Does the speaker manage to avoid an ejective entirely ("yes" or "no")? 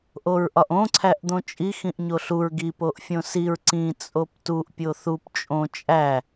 no